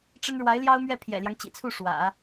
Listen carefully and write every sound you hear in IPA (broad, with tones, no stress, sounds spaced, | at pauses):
ʈ͡ʂ ə˥ n ɻ w a˧˥ ɪ̯ l j ɑ˥ ʊ̯ m ɥ ɛ˥˩ pʰ j ɛ̰˨˩ l j ɑ˦ ŋ t͡ɕ ḭ˨˩ t͡sʰ u˥˩ ʂ w ä̰˨˩˦